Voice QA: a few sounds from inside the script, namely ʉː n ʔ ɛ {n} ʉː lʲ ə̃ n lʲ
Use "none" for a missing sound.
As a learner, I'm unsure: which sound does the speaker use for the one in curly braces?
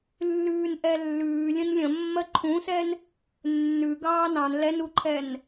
lː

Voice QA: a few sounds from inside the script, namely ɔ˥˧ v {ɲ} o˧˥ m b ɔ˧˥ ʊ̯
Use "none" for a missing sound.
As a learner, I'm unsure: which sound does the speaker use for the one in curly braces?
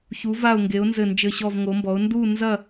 ŋ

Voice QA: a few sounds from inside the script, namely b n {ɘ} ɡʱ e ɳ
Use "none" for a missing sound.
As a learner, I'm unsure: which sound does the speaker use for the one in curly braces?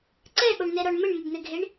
ɘ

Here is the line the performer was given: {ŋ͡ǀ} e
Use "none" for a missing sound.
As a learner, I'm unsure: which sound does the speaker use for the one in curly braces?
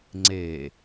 ŋ͡ǀ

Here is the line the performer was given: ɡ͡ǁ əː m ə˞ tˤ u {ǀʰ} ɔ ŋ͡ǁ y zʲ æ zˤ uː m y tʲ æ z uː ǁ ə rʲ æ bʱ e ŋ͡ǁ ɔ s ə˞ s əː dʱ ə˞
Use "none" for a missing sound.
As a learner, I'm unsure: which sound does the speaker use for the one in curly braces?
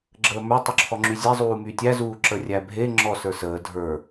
ǁʰ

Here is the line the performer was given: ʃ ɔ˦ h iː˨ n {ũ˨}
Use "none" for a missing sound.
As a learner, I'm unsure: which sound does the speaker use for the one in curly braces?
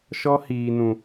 ũ˨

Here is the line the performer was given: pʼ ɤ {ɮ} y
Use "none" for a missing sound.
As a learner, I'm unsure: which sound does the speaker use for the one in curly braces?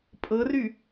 r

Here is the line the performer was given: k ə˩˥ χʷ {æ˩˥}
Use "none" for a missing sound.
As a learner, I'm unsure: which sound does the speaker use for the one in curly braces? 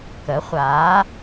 a˩˥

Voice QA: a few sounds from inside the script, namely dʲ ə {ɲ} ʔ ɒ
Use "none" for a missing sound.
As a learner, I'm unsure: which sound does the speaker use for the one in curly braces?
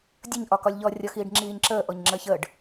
ɲ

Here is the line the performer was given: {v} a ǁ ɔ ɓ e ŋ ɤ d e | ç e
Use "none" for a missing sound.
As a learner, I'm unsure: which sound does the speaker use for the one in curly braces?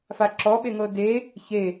f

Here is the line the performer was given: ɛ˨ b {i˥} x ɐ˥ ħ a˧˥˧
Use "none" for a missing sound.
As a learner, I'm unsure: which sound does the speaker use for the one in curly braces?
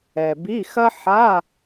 i˧˥˧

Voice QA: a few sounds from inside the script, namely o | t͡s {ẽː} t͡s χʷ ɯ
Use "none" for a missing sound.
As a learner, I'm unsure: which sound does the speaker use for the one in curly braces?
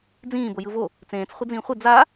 ẽː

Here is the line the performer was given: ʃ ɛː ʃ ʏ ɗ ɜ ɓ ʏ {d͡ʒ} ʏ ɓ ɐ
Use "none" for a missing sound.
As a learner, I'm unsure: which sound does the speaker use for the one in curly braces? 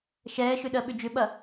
d͡ʒ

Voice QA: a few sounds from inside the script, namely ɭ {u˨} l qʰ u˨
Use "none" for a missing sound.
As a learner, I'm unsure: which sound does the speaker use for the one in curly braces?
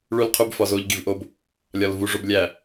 u˨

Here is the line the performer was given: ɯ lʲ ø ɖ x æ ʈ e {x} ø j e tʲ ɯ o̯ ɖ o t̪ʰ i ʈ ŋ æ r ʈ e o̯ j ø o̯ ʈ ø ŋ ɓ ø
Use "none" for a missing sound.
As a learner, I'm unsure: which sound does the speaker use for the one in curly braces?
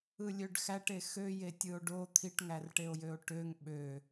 x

